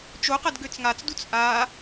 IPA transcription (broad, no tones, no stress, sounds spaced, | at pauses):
t͡ʃ o q ɐ d ɡ ø t͡s ŋ a t͡s d u t͡s ʔ a